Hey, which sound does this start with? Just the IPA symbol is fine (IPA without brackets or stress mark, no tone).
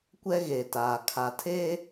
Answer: kʷ